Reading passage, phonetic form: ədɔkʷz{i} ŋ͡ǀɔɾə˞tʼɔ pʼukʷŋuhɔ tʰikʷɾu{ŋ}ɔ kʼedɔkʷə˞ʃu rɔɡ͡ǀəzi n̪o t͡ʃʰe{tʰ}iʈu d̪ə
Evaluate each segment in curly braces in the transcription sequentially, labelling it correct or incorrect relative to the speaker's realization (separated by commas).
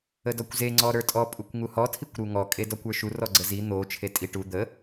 incorrect, correct, incorrect